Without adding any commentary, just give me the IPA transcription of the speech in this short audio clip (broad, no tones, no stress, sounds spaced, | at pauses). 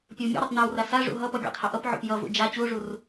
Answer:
pʲ ʌ w mʲ ṵ ɾ o tˤ n a w r a s a ʐ ṵ ɦ ʌ p ʌ ɡʲ a̰ tˤ h a ʔ ʌ p ʕ o̰ p j ʌ v ṵ d͡ʒ a t͡ɕ u o̯ ʐ u r